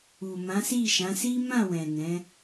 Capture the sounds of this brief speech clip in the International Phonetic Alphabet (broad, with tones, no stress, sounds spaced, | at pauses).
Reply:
u˨ m ã˨˦ s i˦˨ ʃ ã˨˦ s i˦ m ã˦˨ w ɛ̃˨ n ɛ̃˨˦